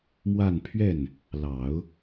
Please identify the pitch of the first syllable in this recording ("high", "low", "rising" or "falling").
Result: falling